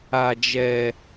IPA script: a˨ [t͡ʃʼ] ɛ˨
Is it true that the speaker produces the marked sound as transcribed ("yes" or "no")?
no